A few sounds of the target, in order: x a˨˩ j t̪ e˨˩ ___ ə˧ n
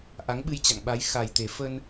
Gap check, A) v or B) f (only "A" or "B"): B